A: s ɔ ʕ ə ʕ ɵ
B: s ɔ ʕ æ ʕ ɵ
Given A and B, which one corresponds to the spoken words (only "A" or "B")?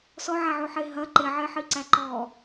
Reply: B